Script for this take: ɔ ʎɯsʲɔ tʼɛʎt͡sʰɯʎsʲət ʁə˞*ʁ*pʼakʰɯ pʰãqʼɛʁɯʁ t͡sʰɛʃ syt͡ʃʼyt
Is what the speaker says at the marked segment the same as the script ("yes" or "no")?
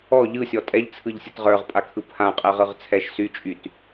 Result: yes